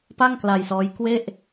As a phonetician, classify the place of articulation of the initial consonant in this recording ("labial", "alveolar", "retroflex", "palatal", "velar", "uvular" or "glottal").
labial